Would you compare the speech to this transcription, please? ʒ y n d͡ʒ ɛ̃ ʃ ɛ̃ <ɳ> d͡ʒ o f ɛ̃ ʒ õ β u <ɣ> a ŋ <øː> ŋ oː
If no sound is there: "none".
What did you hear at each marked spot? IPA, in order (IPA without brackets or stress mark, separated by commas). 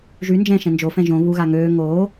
n, ɣ, øː